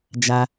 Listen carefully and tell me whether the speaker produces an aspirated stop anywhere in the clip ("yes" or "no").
no